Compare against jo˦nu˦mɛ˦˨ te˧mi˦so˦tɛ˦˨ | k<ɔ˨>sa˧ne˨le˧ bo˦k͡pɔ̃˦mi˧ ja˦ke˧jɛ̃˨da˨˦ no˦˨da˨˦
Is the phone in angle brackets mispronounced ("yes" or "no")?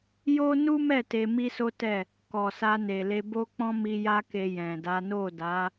no